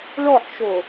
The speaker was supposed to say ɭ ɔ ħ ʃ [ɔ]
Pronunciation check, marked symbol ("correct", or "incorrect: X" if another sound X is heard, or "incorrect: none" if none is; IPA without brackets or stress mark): incorrect: o